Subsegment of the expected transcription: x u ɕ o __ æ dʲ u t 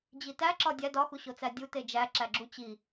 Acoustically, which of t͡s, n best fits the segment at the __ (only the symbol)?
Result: t͡s